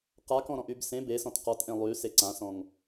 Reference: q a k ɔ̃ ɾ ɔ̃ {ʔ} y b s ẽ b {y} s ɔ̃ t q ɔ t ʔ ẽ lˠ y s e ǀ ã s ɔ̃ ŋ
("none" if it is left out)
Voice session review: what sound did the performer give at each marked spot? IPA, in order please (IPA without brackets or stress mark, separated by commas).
ʔ, e